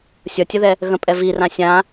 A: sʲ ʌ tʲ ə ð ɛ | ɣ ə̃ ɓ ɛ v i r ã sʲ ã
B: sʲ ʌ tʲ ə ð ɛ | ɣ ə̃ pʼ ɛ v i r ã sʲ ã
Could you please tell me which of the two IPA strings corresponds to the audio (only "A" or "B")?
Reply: B